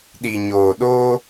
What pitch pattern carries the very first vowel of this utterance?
low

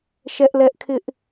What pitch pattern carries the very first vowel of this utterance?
high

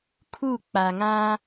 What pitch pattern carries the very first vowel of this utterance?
falling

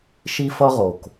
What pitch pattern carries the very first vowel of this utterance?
high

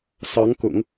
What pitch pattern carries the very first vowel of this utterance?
rising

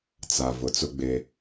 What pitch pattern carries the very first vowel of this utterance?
low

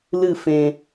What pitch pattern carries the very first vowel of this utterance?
falling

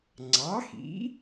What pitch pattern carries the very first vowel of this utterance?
rising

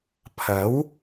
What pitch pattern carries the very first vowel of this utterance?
rising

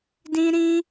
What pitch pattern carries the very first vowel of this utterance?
high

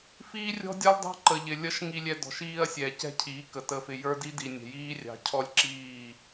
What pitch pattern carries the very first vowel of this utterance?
high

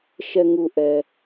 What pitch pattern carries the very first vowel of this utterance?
low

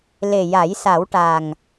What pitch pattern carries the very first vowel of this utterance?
low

